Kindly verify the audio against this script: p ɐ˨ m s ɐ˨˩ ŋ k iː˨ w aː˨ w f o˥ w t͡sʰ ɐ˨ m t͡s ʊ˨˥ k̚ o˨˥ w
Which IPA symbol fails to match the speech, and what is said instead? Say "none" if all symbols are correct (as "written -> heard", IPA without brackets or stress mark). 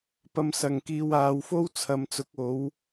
none